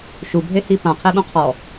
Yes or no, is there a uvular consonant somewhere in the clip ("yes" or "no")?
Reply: yes